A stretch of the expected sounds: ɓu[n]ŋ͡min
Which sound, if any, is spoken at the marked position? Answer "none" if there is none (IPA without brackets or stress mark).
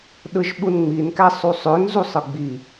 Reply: n